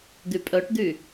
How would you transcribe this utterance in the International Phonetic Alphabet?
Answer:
d̪ y pʼ œ ʈ d̪ y

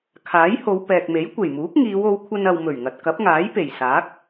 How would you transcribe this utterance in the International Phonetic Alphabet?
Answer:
kʰ aː˨˥ j h o˨˧ w p ɛː˨ k̚ m e˨˥ j kʷ e˨˩ j m uː˨˥ k̚ ŋ iː˨˧ w o˨˧ w kʷʰ ɐ˧ n ɐ˨ w m ɵ˨˩ ɥ ŋ ɐ˨ t̚ k ɐ˨˥ p̚ ŋ aː˨˥ j p e˨˩ j s aː˨˥ k̚

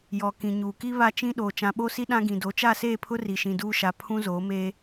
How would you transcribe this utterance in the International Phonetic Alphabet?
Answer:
j ɔ˨ k ĩ˨ ɲ uː˨ k i˦ β a˦ t͡ʃ ĩ˦ ɗ oː˨ t͡ʃ ã˨ ɓ o˦ s i˦ ɗ ã˦ ɡ ĩ˨ d o˨˦ t͡ʃ a˦˨ s eː˦˨ pʰ ʊ˦ r i˨ ʃ ĩ˨ d uː˦ ʃ a˨ pʰ ũ˦ z oː˨˦ m eː˦

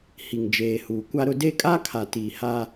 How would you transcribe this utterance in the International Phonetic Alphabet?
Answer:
h i˨ ŋ d͡ʒ eː˨ h uː˨ kʷ a˦ ɾ ʊ˦ d e˦ kʼ a˦ kʰ a˨ t iː˨ h a˦

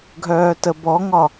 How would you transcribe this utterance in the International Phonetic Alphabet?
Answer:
ɡʱ œː t ə b ɔ ŋ ɒ

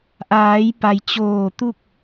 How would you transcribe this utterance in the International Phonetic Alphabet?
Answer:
ʔ aː˩˧ j p a˩ j t͡ɕ oː˧˩ t̪ u˥˨ k̚

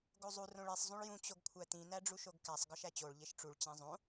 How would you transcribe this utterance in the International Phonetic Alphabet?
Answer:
ɡ o zˤ u r õ ɭ i sˤ zˤ ũ ɭ j ũ t͡ɕ o ɡ kʷʰ æ t̪ ĩ n̪ æ ɖ͡ʐ u ʃ o ɡ k æ sˤ ɡ ɒ ʃ æ t͡ɕ o ɭ ʎ e ʃ ʈ͡ʂ u ɭ t͡ɕ æ̃ zˤ õ

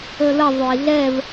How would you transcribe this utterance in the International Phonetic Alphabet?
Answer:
ə l ə ðˤ ø i̯ ɮ ɛ v

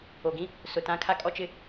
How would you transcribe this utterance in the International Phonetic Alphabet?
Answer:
o˨ ɡ ĩ˦ | s ʊ˨ t ã˦ kʰ a˦ kʼ ɔ˦ t͡ʃ ɪ˦

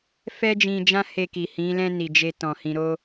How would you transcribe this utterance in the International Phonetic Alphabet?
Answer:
f ɛ˦ d͡ʒ ĩ˧ d͡ʒ ã˦ h e˧ k i˨ h ĩ˨˦ l ɛ̃˦ n i˧ d͡ʒ e˦ t ɔ̃˧ h ĩ˧ ɾ o˦

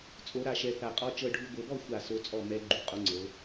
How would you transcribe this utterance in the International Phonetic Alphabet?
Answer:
t͡sʼ o˧˥ ɾ a˥˨ ʃ ɛ˧˥ θ a˧ qʼ ɔ˧˥ t͡ʃ ɤ˧ ɖʱ u˧ ɡʷ ɤ˧ b ɔ˥˨ xʷ a˥˨ s o˧˥ t͡sʼ ɔ˥˨ m ɛ˧˥ ɡ͡ǃ u˧ qʼ o˧˥ ŋ͡ǀ ɤ˧˥

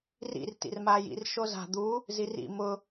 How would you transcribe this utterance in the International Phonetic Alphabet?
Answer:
r ḭ r t ḭ r m aː j ḭ r ʃ o z a̤ d̪ u | z i r ḭ m ʊ

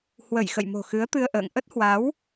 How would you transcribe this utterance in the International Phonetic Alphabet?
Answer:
h w ə˧˩ j x ə̰˧˨ j m o̤˨˩ x ɨ˨˦ ə̯ t̪ ɨ˧ ə̯ ʔ ə̰ː˧˨ ŋ ʔ ə˦˥ t̚ h w a˨˦ w

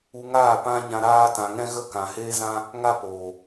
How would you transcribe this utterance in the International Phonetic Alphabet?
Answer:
u˧ ŋ aː˦˨ p ã˦ ɲ ã˧ ɾ aː˦ t ã˨ ŋ ɛ̃˧ ɣ ə˦˨ k ã˨ h eː˦ z ã˦ | ŋ a˦ p oː˨

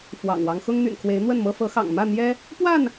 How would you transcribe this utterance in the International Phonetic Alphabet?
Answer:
f w ɑ̰˨˩ ŋ w ɑ˦ ŋ x ʊ˦ ŋ n̪ y̰˨˩ n kʰ w e˨˦ ɪ̯ n̪ w ə˥˨ n m ɤ˦ f ɤ˨˦ x ɑ̰˨˩ ŋ m ä˥˨ n̪ j ɛ˦ | p w a˥˨ n

